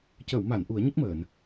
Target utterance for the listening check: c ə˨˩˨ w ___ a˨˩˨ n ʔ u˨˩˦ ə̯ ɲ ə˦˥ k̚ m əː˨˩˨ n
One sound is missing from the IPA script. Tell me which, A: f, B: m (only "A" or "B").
B